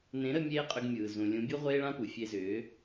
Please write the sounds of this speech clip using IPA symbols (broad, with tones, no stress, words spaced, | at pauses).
nẽ˨˦ɾə˧ mʲeː˦qʼʏ˧ɡmʲɯː˨zũ˨ lʲũ˨˦bʲu˦ ʁʷeː˦ɭã˦pu˨ fʲe˧zʏː˨˦